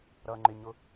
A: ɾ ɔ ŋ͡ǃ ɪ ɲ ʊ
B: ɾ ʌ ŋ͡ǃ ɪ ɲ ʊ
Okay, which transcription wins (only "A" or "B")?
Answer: B